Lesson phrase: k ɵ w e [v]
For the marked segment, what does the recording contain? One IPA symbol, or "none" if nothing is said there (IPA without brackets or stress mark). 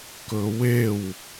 w